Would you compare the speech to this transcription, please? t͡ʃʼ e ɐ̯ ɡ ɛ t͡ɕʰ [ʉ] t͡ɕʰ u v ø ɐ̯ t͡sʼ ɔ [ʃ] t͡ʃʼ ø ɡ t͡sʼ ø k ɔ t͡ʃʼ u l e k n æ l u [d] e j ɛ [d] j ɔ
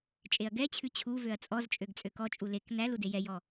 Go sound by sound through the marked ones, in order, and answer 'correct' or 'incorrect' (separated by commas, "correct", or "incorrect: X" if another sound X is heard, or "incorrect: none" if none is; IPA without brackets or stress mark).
correct, incorrect: z, correct, incorrect: none